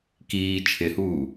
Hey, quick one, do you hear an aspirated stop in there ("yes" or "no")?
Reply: yes